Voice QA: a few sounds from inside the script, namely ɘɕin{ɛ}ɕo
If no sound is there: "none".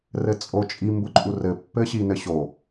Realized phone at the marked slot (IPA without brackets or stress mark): ɘ